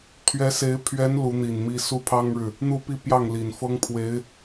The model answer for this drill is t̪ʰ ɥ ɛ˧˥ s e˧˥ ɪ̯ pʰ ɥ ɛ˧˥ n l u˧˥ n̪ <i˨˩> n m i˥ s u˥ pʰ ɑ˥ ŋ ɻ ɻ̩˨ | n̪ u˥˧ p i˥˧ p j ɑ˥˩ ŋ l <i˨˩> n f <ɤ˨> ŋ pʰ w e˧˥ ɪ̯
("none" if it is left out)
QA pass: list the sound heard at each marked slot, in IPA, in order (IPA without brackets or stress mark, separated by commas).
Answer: i˨˩, i˨˩, ɤ˥